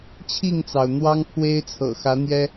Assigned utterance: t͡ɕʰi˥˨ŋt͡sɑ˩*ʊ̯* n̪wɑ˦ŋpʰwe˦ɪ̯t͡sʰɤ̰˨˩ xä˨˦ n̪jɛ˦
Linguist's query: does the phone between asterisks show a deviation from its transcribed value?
no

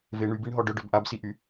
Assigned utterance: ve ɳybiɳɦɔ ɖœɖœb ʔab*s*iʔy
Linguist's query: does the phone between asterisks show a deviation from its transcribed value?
no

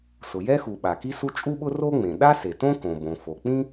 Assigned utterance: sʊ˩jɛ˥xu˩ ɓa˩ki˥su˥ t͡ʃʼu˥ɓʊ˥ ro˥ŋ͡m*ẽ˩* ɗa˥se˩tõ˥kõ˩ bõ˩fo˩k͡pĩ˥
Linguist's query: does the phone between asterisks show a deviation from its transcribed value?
no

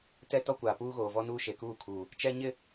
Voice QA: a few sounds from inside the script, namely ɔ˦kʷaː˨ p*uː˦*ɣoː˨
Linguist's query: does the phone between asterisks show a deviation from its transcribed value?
no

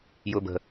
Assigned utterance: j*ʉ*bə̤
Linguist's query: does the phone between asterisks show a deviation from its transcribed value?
yes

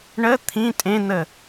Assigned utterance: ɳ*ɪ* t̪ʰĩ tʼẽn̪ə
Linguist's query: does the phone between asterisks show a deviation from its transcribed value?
yes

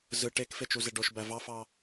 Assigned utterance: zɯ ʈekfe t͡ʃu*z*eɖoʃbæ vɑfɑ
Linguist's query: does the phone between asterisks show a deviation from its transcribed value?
no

